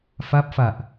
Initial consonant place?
labial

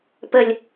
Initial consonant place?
labial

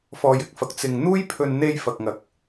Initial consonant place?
labial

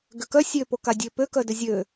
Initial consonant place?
velar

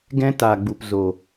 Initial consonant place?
velar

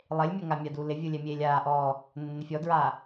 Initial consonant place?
alveolar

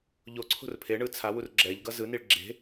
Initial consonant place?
palatal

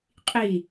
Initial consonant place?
uvular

